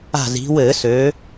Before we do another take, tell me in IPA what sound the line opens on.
a̤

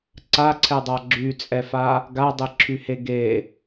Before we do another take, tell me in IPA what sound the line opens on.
ǀ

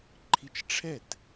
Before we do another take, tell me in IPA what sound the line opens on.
ǃʰ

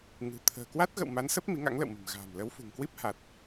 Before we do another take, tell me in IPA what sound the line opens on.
ŋ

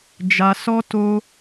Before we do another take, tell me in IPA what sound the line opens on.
d͡ʒ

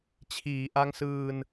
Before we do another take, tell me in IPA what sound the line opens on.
t͡ɕʰ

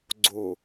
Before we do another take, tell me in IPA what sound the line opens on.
ɡ͡ǀ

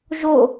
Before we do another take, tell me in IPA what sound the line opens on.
ʒ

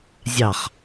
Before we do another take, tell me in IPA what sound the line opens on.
zʲ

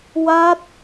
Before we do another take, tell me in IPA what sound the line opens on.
w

